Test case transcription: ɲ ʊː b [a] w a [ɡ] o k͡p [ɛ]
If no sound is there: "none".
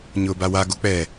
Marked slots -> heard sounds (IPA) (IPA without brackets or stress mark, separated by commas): a, ɡ, ɛ